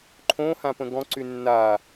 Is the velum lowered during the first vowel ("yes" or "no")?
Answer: yes